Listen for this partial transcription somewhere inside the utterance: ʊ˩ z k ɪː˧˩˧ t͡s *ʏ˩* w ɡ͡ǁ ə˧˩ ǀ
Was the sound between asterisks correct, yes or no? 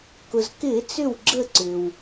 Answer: no